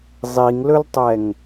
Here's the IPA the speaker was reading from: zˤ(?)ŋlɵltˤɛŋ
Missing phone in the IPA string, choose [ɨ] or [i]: i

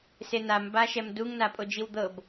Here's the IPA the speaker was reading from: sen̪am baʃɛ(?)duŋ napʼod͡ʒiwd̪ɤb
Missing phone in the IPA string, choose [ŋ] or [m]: m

